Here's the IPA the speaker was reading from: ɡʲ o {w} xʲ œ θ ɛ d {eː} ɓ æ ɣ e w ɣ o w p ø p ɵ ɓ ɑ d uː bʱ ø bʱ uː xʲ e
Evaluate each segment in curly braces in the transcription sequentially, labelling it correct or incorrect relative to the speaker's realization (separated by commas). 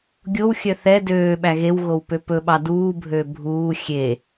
correct, incorrect